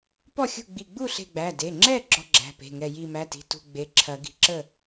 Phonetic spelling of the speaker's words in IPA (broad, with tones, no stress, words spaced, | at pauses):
pɔ˥˨ xʲṳ˥˨ ɡ͡bi˧˩ɡ͡bu˥˨ɬe̤˧˩ɡ͡bæ˩˧˩ de˩˧˩ŋ͡ǁɛ˥˨ ɡ͡ǁɔ˦ɡ͡ǁæ̤˩˧˩pe̤˩˧˩ŋɛ˧˩ ji˧˩mæ˩˧˩ti̤˩˧˩ tṳ˧˩ ɡ͡be˩˧˩ǁʰɐ˨˩˦ ɡi̤˩˧˩ǁə˥˨